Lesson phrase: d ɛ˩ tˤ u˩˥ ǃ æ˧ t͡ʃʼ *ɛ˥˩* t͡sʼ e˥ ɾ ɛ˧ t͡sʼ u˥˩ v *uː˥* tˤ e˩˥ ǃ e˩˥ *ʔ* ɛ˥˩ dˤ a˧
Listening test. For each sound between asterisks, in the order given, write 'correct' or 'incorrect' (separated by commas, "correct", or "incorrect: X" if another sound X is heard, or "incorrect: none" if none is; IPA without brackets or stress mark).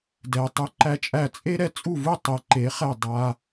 incorrect: æ˥˩, incorrect: u˥, incorrect: χ